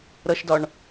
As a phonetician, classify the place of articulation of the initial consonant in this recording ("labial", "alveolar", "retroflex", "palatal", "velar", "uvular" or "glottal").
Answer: alveolar